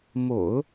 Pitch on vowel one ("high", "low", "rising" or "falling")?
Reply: low